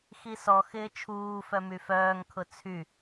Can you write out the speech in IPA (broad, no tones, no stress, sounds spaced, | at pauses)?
x i s ɔ x ɪː t͡ʃʰ uː f œ m y f œː ŋ kʰ ʊ t͡sʰ y